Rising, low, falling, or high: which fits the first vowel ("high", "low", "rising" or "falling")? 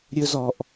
high